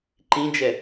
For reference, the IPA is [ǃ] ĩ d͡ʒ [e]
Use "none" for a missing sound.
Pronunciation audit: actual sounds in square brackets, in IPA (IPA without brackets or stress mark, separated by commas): ǃ, ɛ